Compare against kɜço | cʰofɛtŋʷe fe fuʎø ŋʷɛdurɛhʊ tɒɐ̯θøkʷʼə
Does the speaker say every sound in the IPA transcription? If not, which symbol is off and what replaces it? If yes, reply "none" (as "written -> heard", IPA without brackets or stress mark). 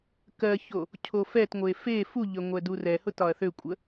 none